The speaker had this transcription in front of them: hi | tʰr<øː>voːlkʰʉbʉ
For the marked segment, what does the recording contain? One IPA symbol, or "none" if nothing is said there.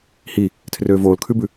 øː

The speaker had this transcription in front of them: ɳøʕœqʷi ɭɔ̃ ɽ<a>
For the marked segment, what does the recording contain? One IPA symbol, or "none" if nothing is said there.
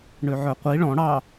ɑ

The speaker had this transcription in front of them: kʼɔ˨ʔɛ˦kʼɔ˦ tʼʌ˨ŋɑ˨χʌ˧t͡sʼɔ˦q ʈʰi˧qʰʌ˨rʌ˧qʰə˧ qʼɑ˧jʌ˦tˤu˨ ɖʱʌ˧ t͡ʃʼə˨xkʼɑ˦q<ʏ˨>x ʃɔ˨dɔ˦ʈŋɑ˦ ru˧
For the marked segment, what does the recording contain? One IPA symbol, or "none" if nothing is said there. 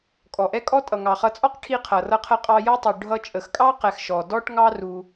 ɛ˨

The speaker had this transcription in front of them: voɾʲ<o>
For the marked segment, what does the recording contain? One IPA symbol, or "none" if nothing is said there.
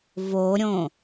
õ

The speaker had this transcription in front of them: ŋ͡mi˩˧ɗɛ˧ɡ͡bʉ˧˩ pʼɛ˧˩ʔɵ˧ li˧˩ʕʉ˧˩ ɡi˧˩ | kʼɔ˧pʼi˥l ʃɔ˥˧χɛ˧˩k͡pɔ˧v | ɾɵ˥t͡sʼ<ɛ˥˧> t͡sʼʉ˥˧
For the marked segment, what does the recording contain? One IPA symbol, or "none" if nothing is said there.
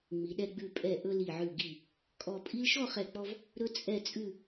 ɛ˥˧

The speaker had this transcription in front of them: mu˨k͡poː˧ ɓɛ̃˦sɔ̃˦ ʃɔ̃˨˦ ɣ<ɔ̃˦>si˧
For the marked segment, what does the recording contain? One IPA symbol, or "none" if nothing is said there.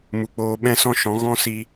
ɔ̃˦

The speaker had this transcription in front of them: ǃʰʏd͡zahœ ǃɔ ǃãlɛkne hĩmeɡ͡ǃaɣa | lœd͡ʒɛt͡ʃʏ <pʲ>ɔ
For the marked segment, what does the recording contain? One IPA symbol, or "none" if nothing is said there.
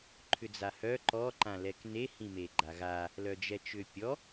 pʲ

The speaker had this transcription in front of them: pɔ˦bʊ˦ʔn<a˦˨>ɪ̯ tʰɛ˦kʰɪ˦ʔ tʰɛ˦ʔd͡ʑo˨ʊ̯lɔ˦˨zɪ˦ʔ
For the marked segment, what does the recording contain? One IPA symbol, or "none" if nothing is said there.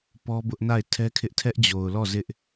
a˦˨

